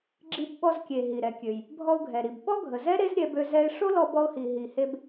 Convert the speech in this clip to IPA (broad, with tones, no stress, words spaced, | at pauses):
ɡ͡ǁi˧b ɓɔ˧zkʲe˩ ɦi˩ɾɛ˩kʲø˩j | bʱɔ˧ʊ̯ɡʱɛ˩ɾi˩b ɓɔ˥ɡʱə˩zɛ˥ ɾe˥zɾʲɛ˧bø˧ zɛ˧ɪ̯ ʂo˥lɔ˧bɔ˧ʊ̯hi˩ ɦi˩he˧b